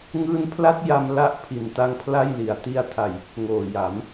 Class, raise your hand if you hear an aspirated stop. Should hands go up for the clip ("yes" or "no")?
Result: yes